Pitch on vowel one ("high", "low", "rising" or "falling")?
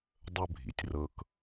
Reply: high